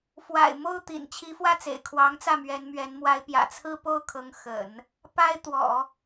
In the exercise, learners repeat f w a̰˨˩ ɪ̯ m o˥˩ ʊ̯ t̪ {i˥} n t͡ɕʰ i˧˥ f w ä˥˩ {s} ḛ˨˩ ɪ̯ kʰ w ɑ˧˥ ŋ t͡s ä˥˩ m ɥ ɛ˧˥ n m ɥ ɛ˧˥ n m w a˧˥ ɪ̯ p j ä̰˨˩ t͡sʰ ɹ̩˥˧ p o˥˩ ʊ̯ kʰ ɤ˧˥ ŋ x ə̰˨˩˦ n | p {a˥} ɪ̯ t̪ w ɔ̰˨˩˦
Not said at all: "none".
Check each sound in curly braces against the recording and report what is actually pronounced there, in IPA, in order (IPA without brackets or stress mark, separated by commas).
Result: ḭ˨˩, t͡s, a˥